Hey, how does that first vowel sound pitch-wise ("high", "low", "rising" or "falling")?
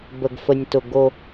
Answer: low